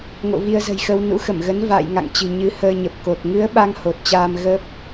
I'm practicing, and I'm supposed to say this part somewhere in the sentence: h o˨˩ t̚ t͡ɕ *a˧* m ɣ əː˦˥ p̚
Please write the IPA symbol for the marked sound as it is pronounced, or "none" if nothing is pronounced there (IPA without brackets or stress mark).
aː˧